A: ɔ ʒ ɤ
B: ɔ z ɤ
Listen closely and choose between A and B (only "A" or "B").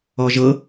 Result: A